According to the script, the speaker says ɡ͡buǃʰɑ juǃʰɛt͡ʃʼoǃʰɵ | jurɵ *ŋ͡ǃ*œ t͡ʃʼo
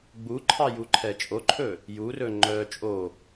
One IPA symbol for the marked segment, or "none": ŋ͡ǃ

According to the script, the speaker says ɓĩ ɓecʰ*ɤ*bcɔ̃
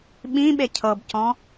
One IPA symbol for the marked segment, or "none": ɤ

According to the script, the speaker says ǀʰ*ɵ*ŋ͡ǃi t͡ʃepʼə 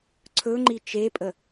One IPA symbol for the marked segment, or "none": ɵ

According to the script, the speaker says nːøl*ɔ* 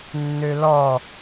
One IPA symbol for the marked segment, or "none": ɔ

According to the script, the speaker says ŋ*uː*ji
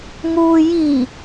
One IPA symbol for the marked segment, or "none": uː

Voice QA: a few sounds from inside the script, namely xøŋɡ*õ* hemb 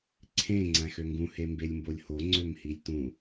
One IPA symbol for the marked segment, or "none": ũ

